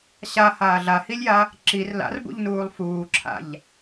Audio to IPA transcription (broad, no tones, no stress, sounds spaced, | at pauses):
ɕ a h aː ɮ a h i lʲ j a | ǁ i r l a̰ r b ṵ ʎ n uː lˠ f uː ǁʰ a̰ ʎ